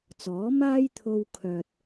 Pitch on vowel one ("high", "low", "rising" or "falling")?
rising